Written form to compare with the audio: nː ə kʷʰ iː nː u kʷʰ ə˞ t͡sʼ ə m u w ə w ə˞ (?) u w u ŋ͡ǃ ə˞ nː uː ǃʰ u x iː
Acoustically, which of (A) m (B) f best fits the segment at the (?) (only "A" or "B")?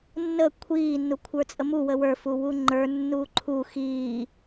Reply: B